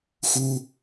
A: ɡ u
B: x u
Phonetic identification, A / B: B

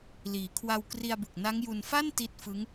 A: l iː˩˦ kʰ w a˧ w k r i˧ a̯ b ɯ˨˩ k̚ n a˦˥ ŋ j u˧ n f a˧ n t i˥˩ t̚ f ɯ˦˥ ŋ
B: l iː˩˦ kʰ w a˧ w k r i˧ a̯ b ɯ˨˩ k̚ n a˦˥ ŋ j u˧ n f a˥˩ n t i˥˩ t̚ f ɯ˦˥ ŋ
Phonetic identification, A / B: B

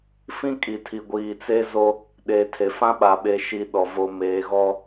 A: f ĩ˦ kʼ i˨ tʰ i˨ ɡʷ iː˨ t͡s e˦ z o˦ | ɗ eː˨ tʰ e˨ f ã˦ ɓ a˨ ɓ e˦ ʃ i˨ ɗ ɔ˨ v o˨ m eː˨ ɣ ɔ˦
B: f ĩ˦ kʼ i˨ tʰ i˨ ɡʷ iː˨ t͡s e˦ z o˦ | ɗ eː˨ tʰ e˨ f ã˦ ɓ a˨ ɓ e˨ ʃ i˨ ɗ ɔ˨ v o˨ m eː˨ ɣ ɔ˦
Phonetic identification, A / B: B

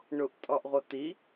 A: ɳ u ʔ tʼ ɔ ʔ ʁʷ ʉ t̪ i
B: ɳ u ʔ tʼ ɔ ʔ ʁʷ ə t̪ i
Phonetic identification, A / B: B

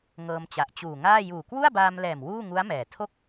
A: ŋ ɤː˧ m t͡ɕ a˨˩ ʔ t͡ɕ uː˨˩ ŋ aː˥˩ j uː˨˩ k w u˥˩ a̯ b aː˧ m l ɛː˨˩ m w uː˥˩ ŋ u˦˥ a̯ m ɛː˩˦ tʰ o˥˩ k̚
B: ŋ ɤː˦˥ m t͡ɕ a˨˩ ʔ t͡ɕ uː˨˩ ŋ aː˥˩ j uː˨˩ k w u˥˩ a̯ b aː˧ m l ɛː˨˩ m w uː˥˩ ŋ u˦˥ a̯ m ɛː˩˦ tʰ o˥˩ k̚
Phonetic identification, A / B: A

